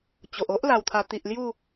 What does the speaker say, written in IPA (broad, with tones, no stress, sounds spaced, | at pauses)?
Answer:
t͡ɕ o˨ ʔ o˦ ʔ l a˧ w t̪ʰ a˧ t̪ i˨ ʔ l j u˥˧